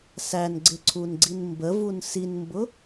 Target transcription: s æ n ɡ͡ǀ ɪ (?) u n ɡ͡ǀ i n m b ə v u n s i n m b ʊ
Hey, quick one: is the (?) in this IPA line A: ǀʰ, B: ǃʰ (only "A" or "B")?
A